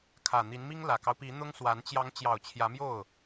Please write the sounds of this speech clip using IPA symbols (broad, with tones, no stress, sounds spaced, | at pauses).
kʰ ä˨˩ n̪ i˧˥ n m i˥ ŋ l ä˨˩ k ɑ˦ ʊ̯ p i˧˥ n̪ ʊ˥ ŋ s w a˧˥ n t͡ɕ j ɑ˧˥ ŋ t͡ɕ j ɑ˨˩ ʊ̯ t͡ɕʰ j ä˧˥ m j o˥˩ ʊ̯